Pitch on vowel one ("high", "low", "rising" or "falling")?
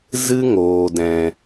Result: high